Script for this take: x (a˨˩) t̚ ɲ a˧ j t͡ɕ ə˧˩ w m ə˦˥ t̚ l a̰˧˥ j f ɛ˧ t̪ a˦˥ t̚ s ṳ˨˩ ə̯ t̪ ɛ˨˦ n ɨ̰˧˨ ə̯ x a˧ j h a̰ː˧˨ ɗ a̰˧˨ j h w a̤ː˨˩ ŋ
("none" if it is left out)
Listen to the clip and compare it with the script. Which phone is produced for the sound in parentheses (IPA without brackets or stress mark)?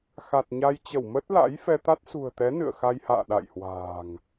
a˨˩